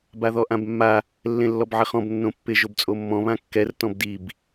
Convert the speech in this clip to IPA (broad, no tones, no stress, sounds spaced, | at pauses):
b a ð ɔ ʔ ã b mː a | lː ẽ lː ɔ b ʕ ɪ χ ɔ̃ b nː õ pː ɪ ʒ o b t͡sʼ o mː ɔ̃ β ã kː ɛ r t ɔ̃ b d i b